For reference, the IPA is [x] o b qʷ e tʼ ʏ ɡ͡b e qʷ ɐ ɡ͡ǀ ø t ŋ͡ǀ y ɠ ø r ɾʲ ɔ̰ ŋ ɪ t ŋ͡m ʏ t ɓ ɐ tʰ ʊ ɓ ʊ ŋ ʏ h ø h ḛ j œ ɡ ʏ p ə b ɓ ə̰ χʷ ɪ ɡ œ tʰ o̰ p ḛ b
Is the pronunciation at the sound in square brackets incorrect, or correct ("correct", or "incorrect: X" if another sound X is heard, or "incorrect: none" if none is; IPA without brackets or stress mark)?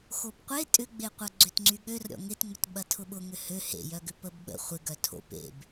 correct